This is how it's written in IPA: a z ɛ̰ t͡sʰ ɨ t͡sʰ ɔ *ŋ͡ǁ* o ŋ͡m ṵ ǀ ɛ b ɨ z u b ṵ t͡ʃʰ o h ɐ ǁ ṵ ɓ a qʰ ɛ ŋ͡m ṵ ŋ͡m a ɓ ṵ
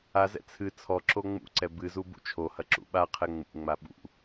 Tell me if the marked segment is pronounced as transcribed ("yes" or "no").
no